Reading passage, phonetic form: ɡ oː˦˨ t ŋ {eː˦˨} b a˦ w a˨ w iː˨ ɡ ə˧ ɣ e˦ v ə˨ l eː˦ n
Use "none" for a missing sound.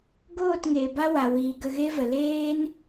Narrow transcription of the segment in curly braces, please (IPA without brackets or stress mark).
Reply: eː˨